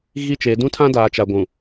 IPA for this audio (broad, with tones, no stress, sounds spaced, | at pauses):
ɣ i˦˨ t͡ʃ e˨˦ d ũ˦ tʰ ã˦ d aː˨ t͡ʃ a˨ ɡʷ ũ˨